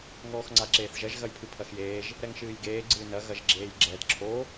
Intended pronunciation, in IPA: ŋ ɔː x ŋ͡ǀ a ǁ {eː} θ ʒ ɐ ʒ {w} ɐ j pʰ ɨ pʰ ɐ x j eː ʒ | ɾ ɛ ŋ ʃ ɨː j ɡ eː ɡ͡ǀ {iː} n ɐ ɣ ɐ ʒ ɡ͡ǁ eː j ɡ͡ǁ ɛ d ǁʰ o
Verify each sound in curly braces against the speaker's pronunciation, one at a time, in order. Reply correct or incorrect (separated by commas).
correct, incorrect, incorrect